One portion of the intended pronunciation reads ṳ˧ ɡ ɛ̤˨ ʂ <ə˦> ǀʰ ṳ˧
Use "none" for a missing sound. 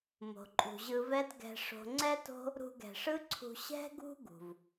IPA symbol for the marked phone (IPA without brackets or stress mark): ɯ˦